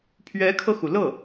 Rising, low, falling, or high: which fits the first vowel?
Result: rising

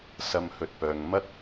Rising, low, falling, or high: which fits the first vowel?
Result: low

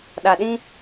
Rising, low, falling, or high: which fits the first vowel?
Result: low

